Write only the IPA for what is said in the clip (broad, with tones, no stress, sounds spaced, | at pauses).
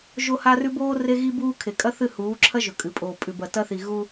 ʒ o˦ h a˦ r ʉ˦ b oː˦ r e˦ ɣ i˦ b uː˦ kʰ e˨ kʼ ɐ˦ θ ɨ˦˨ h uː˨˦ ǁʰ ɐ˦ ʒ ɵ˨ kʼ ɨ˨ pʼ oː˨ pʼ ʉ˨ b ɐ˨ t ɐ˦ θ i˨ ɣ u˦